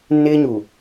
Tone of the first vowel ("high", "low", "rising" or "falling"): high